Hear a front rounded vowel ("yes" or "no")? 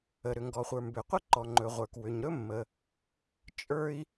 yes